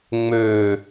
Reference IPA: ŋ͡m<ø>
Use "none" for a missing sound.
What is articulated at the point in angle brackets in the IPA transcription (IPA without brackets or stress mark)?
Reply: ø